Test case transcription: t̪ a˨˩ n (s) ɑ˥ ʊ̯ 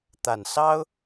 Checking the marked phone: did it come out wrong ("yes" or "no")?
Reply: no